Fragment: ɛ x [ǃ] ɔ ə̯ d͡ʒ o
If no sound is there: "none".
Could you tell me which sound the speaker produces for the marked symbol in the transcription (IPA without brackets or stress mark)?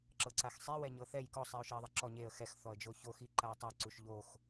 θ